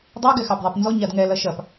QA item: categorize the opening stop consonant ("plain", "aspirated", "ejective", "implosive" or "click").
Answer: plain